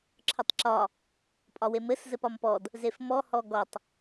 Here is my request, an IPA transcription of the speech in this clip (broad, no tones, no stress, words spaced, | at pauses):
ǁʰətˤǁɒ | pʼɒwemɘs zɘpɒmpɔd | zefmɔ hɔɡɔtˤ